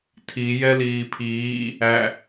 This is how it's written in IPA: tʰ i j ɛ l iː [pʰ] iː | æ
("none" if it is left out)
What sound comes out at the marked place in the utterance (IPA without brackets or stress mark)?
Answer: pʰ